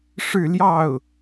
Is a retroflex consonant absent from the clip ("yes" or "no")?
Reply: no